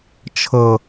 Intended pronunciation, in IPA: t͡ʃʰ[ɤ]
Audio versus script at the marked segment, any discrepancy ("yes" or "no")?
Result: no